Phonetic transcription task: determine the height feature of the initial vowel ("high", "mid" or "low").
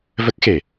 mid